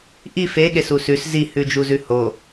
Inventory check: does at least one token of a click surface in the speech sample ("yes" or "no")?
no